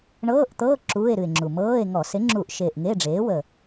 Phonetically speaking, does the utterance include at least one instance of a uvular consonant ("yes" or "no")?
no